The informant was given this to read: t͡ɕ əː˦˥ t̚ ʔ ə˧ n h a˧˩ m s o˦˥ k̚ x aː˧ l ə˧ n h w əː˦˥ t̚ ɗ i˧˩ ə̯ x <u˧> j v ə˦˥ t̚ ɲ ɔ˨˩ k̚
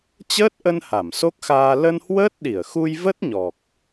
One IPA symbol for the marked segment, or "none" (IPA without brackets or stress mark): u˧